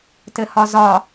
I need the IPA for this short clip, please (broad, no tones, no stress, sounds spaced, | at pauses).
t ɘ h ɒ z ɒ